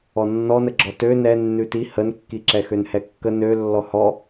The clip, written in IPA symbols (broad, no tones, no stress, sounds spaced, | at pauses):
ɔ nː ɔ n ə ɡ͡ǁ ɔ t ø n ɛ nː ʉ t i h ə n kː i ǁ ɛ x ø n h ɛ kː ə n ø lː ɔ h ɔ